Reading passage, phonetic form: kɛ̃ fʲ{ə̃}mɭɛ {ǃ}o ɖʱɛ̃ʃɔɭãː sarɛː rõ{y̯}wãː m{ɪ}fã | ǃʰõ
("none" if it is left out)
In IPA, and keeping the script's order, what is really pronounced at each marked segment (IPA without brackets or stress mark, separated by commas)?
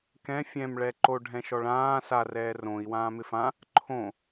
ɛ̃, ǃ, i̯, ɪ